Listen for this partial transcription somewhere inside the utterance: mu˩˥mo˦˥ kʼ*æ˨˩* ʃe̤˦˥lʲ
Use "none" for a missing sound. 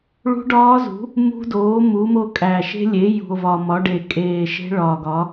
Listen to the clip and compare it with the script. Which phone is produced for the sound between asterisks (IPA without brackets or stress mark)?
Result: æ˨˩